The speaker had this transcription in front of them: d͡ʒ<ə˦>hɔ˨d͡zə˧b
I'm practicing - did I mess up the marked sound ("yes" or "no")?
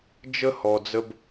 no